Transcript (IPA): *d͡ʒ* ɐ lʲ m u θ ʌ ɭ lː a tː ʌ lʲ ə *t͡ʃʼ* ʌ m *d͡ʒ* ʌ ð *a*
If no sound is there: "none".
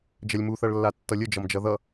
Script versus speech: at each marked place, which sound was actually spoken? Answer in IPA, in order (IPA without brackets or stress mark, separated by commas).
d͡ʒ, d͡ʒ, d͡ʒ, ʌ